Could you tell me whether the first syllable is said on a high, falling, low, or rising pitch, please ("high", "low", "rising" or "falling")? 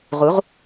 rising